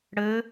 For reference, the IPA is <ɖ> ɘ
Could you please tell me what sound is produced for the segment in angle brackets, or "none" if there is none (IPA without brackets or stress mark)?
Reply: ɽ